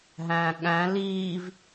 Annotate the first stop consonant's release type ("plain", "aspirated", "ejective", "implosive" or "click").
implosive